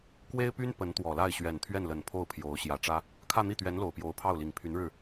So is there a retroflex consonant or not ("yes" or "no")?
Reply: yes